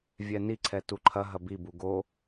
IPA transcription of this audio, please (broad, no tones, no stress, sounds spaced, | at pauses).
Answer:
vʲ ɛ n i ǀʰ ɛ t u ǃʰ ɐ ɦ ɐ b i b u ɡ o